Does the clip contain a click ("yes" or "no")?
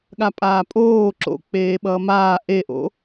yes